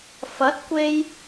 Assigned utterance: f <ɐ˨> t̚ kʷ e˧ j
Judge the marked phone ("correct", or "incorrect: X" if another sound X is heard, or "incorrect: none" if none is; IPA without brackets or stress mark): incorrect: ɐ˨˥